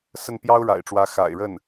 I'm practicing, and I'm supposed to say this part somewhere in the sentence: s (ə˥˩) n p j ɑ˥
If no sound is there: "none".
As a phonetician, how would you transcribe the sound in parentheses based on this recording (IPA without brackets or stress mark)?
ə˥˩